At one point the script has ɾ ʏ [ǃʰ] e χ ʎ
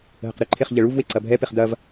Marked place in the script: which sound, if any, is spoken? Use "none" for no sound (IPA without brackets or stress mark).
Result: ǃʰ